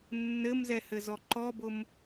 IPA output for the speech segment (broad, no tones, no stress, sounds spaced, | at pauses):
nː ɘ m z ɛ h ɘ z ɔ ǃ ɔ b ʊ m